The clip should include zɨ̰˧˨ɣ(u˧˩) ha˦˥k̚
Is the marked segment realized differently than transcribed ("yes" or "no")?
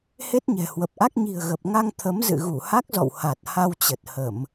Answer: no